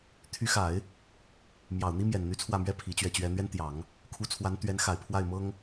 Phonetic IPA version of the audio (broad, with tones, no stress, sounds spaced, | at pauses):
t̪ʰ y˧˥ x a˨˩˦ ɪ̯ | m j ɑ˨˩ ʊ̯ n̪ i˥ m j ɛ˨˩ n n̪ y˧˥ t͡sʰ w ä˥˩ m ɥ ɛ˥ pʰ i˧˥ t͡ɕ ɥ ɛ˥˩ t͡ɕ ɥ ɛ˥ n̪ ɥ ɛ˥ n t̪ j ɑ˨˩˦ ŋ | kʰ u˧˥ t͡sʰ w a˧˥ n t̪ ɥ ɛ˧˥ n x a˨˩ ɪ̯ pʰ w a˥˩ ɪ̯ m ɤ˥ ŋ